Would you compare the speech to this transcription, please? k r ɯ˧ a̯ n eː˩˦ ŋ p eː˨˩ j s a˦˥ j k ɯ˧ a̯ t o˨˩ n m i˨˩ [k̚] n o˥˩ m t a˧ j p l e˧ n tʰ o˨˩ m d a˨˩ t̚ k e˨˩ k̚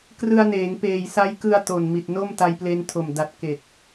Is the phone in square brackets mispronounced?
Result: yes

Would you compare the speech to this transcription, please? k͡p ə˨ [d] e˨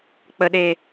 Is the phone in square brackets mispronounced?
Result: yes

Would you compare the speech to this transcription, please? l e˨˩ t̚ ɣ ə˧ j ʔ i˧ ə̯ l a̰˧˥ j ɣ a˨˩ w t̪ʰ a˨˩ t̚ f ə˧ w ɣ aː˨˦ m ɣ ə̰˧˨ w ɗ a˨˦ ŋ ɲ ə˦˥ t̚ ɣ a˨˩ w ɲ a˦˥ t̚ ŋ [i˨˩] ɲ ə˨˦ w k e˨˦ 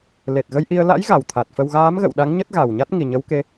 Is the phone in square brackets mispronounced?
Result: no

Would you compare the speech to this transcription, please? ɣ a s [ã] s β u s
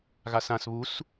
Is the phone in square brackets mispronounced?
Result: no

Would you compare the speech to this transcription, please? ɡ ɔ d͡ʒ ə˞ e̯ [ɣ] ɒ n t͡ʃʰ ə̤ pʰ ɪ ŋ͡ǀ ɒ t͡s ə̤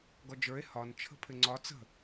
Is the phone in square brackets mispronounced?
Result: yes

